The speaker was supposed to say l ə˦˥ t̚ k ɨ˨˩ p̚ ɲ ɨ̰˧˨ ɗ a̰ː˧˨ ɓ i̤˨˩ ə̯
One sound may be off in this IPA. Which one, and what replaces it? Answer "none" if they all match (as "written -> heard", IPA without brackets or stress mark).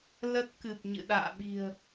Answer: none